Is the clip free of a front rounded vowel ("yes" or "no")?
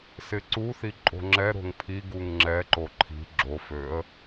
no